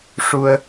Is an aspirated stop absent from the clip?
yes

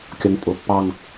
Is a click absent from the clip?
yes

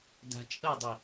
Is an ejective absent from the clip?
no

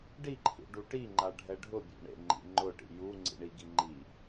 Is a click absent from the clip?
no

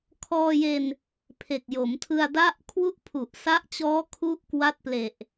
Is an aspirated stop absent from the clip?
no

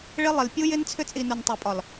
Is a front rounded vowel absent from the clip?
no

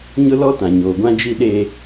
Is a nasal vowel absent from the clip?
no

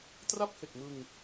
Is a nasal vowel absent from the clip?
yes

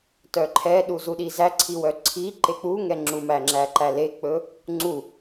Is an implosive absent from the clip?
no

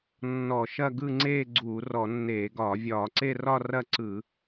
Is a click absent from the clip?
no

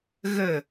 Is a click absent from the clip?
yes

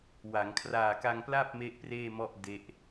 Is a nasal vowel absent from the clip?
yes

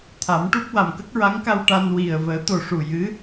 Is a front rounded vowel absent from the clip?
yes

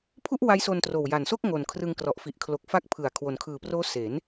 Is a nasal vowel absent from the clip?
yes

